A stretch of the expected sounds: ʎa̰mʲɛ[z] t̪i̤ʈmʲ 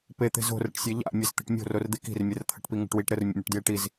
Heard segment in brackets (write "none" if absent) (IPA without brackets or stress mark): z